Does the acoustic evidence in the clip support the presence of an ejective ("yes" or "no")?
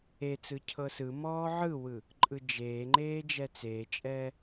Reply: yes